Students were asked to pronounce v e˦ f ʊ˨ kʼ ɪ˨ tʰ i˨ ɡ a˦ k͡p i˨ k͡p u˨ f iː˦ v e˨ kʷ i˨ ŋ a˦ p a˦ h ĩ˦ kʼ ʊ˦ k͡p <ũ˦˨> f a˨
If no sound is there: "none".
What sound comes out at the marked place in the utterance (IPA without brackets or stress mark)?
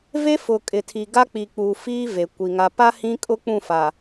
ũ˦˨